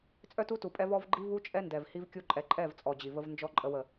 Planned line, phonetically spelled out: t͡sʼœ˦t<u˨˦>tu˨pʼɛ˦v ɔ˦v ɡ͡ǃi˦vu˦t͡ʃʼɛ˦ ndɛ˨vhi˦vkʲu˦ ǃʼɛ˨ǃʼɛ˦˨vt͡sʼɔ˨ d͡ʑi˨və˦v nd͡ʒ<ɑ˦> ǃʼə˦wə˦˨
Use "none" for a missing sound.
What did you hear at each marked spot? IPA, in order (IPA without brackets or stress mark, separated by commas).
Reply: u˦, ɔ˦